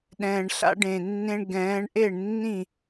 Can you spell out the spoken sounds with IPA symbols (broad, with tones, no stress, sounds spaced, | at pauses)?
ɗ ɛ̃ː˨˩ ɳ ɬ a̰˦ ɖ ẽ˨˩ nː ẽ˦ ɳ ɡ ɛ̃ː˨˦ ɳ ʔ e˥˨ ɳ nː ĩ˥˨